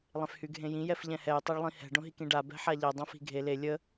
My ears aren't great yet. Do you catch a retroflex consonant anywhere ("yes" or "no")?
yes